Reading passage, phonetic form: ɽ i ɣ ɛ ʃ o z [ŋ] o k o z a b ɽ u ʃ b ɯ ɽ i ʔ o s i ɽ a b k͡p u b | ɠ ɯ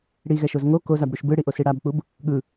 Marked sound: correct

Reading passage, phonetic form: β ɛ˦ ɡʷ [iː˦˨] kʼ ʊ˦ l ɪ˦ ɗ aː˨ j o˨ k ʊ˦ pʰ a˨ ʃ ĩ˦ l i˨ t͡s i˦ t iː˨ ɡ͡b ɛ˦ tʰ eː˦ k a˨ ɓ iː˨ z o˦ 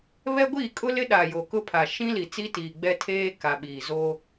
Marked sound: correct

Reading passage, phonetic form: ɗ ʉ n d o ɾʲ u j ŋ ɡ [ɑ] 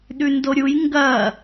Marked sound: incorrect: ɐ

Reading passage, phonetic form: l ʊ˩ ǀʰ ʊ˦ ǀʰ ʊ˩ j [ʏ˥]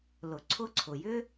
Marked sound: correct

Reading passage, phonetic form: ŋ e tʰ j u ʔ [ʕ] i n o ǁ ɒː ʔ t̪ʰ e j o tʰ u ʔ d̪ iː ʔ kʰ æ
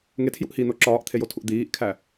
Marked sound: incorrect: h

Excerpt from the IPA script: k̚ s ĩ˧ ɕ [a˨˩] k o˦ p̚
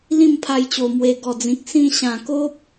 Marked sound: incorrect: ã˨˩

